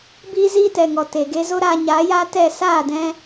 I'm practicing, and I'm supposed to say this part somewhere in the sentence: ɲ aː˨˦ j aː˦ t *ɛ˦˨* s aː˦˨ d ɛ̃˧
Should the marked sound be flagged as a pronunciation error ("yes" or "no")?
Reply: no